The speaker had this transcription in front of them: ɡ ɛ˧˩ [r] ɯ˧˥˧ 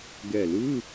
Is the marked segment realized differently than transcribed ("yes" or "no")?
yes